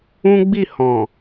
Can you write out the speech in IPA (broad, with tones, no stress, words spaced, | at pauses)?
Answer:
ũ˦ɡ͡bi˦˨ hɔ̃˨